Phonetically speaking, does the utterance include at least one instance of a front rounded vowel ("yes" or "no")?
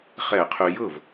yes